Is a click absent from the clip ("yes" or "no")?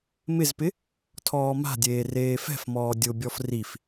yes